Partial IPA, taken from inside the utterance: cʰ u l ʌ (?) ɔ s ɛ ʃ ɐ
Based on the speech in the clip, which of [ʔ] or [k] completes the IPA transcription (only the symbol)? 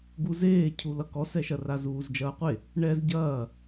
k